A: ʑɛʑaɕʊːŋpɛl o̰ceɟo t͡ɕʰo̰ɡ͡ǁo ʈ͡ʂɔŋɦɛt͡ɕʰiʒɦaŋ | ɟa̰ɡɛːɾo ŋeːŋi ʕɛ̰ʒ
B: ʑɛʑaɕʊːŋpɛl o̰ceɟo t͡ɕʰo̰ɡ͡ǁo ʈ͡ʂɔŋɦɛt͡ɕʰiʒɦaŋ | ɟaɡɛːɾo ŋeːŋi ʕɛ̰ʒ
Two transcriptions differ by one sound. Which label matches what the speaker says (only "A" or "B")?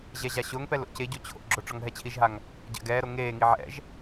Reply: A